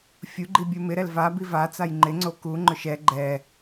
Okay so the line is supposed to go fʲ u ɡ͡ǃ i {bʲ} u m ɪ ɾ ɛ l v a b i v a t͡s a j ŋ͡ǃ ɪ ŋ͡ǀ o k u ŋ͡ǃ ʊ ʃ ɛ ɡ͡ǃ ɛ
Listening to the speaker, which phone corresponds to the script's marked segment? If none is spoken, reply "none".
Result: bʲ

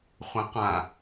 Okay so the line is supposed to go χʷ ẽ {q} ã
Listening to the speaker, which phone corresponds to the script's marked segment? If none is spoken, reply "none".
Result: q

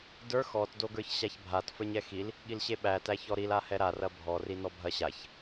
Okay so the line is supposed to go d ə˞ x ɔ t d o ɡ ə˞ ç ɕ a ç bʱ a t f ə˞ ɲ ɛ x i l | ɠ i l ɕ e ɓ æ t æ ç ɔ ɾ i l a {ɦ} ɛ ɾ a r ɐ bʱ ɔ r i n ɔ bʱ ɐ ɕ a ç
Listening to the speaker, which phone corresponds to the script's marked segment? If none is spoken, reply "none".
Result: h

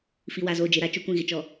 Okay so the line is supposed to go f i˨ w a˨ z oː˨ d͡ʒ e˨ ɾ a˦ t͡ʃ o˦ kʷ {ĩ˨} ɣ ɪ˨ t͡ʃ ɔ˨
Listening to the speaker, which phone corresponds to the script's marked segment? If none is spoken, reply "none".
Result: ĩ˦˨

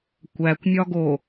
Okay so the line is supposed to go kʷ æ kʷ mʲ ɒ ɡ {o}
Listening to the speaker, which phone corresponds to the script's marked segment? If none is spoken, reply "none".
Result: o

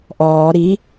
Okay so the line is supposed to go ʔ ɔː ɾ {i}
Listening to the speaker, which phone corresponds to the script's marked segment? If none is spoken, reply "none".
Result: i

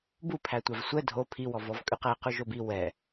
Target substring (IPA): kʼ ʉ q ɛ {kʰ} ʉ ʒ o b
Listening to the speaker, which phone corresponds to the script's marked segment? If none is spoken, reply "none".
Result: q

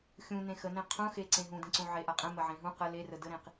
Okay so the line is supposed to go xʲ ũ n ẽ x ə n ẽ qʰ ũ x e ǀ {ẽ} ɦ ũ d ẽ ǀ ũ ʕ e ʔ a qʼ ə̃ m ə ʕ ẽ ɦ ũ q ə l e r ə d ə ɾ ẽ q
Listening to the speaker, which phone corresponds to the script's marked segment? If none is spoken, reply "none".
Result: ẽ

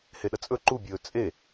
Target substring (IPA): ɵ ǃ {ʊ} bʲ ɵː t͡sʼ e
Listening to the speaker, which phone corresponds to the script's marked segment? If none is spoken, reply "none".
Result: u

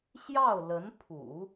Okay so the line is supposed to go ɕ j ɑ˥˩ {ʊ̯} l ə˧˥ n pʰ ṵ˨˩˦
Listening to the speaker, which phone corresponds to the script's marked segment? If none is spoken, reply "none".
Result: ʊ̯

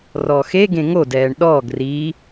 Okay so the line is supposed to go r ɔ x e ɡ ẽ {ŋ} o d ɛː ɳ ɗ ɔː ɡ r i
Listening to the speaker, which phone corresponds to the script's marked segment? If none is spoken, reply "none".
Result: ŋ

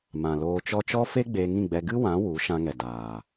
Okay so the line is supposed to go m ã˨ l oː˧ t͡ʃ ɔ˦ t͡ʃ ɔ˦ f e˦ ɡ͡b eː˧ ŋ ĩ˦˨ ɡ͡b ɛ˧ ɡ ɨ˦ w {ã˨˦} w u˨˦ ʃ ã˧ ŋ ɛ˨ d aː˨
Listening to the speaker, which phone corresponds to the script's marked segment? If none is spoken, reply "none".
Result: ã˨˦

